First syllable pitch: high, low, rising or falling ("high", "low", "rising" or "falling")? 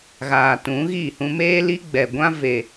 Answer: low